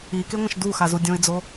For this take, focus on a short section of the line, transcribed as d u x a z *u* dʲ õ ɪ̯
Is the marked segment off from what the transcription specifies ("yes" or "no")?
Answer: no